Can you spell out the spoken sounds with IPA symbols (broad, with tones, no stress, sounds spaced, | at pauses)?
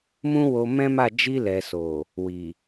m ũ˦ w o˧ m ɛ̃˦ m a˦˨ d͡ʒ i˧ l ɛ˨ s o˨ | w i˨